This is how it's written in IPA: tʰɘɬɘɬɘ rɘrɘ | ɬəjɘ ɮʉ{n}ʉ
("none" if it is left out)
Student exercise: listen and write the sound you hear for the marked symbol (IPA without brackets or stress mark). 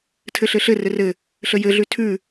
tʰ